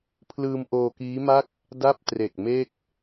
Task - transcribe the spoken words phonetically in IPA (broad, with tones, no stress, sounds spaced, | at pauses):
pʰ l ɯː˧ m ʔ oː˧ k iː˦˥ m a˥˩ k̚ | d a˥˩ p̚ t r e˨˩ k̚ m e˥˩ k̚